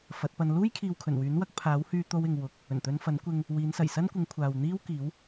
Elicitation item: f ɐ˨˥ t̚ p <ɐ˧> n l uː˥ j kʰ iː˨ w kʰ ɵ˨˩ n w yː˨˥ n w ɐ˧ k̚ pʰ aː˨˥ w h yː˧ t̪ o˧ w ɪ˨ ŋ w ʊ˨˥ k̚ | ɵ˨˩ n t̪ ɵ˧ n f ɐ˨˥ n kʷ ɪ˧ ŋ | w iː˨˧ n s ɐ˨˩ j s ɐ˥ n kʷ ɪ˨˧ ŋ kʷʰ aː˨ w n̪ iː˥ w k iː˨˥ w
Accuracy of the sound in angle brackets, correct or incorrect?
correct